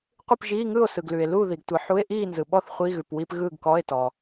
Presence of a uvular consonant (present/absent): present